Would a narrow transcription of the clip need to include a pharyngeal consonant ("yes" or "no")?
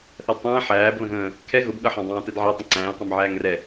yes